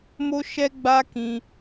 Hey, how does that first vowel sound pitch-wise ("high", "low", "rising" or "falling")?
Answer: high